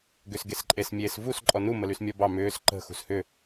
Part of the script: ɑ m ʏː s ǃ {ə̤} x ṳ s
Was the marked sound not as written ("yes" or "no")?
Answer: no